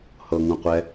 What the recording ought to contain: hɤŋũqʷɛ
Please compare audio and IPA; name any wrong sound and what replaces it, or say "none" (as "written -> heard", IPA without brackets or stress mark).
none